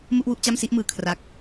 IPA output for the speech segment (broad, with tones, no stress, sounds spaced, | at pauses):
m u˥˩ ʔ w u˥˩ ʔ t͡ɕ a˥˩ m s i˥˩ ʔ m ɯː˧ kʰ r a˦˥ k̚